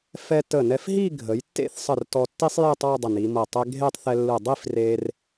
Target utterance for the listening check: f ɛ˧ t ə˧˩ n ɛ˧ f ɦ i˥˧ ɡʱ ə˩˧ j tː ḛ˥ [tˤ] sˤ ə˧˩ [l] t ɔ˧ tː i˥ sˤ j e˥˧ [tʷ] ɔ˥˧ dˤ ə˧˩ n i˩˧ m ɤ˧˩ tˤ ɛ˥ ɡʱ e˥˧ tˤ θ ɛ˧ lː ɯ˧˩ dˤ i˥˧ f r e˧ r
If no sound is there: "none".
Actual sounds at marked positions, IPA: θ, r, tˤ

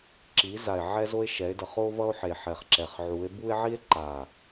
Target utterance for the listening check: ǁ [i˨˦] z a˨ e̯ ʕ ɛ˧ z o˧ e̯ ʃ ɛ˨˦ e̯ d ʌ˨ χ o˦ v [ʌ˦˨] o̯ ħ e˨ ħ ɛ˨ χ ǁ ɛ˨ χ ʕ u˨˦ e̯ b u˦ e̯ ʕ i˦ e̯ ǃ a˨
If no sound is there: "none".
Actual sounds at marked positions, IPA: i˨˦, ʌ˦

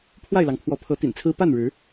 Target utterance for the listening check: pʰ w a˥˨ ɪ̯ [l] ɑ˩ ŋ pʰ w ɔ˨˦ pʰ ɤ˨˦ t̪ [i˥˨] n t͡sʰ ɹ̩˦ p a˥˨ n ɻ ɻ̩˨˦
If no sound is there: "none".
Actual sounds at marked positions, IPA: l, ḭ˨˩

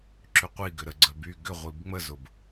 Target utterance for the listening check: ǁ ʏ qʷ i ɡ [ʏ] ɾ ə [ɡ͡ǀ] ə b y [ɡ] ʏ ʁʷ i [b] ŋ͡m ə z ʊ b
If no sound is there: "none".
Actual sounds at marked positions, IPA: ʏ, ɡ͡ǀ, ɡ, b

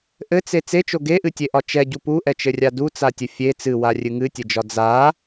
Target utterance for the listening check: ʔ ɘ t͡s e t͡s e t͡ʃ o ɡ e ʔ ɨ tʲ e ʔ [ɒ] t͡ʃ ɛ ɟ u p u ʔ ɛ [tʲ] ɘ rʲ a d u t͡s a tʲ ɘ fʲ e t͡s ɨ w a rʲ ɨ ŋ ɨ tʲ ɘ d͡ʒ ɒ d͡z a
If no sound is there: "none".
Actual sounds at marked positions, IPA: ɒ, t͡ʃ

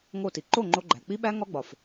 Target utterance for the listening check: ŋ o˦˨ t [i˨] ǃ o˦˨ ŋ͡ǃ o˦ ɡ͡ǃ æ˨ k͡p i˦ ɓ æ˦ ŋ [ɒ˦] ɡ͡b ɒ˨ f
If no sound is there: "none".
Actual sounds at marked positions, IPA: i˨, ɒ˦

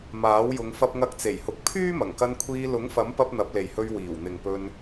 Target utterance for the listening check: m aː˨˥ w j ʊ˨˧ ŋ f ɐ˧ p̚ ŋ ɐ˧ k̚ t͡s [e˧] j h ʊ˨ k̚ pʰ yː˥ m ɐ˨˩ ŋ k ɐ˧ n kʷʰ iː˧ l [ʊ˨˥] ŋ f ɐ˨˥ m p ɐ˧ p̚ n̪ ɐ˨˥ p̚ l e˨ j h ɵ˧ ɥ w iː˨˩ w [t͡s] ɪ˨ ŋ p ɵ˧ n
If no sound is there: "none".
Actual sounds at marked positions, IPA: e˨˩, ʊ˨˥, n̪

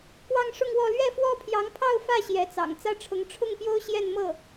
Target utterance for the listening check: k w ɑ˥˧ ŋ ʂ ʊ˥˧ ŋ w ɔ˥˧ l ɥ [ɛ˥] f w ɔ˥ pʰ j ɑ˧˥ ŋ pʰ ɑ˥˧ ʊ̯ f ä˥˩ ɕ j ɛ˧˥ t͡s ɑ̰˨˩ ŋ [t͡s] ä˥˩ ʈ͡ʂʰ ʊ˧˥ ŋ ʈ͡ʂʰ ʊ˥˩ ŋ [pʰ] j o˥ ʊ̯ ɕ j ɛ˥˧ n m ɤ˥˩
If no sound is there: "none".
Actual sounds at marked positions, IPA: ɛ˥˩, t͡s, p

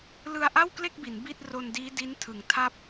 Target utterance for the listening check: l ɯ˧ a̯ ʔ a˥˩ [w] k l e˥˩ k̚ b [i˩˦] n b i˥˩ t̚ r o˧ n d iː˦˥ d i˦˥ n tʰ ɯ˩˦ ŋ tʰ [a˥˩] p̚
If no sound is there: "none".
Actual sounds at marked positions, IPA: w, i˩˦, a˥˩

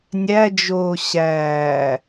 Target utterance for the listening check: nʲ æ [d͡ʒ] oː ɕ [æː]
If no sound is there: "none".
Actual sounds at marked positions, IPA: d͡ʒ, æː

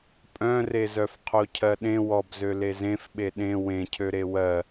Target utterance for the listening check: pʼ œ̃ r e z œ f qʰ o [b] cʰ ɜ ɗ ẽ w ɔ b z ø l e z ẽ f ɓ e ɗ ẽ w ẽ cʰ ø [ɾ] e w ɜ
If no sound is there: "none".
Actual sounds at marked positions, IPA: none, ɾ

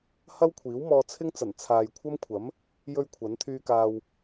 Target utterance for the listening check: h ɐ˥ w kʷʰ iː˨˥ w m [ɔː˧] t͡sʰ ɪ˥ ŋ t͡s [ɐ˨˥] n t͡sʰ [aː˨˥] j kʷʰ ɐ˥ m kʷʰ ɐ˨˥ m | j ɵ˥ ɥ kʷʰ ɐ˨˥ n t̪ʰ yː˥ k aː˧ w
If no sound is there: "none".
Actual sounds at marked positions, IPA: ɔː˧, ɐ˨˩, aː˨

